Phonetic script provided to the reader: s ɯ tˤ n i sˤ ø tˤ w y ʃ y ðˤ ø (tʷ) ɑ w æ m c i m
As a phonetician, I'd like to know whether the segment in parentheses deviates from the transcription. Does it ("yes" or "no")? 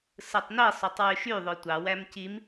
no